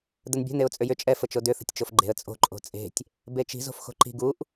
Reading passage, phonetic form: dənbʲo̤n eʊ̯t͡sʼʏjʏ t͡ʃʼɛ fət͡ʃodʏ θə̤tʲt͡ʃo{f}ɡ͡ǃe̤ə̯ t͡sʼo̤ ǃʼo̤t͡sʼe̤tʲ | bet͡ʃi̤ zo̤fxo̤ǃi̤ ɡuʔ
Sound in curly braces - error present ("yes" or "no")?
no